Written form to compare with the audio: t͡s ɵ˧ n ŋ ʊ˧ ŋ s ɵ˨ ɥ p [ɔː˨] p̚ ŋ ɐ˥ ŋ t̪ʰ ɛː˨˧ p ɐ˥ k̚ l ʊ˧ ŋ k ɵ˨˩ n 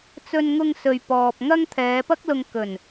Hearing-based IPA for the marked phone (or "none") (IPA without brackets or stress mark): ɔː˨